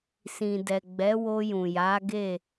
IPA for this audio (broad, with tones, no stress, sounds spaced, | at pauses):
s ĩ˨ d ɛ˨ ɡ͡b ɛ˨˦ w o˧ j ũ˨ j a˨˦ ɡ e˦˨